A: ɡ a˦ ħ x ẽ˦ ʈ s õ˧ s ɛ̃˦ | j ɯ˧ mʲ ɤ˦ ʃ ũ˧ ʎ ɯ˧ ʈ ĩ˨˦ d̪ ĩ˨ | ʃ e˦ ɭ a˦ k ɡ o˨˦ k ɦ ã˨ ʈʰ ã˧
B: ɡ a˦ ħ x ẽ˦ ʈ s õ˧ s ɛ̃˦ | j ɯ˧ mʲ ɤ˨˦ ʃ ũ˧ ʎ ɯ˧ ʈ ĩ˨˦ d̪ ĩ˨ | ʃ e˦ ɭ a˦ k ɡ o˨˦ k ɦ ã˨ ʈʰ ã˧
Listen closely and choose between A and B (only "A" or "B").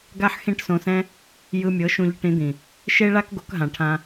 B